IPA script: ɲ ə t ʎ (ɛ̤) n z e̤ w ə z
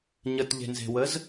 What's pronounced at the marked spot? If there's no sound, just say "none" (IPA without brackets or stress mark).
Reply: e̤